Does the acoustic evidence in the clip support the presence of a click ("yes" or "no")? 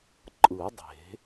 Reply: yes